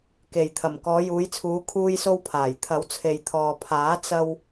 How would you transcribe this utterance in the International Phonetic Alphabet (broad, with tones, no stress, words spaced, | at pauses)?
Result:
ke˨j t̪ʰɐ˨˩m kɔː˨˧juː˨˧jt͡sʰuː˨˧ kʰuː˧jso˧wpʰaː˨˩j t̪ʰɐ˨˥wt͡sʰe˨j t̪ʰɔː˨pʰaː˨˥ t͡sɐ˧w